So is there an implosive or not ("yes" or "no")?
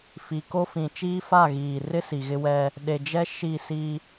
yes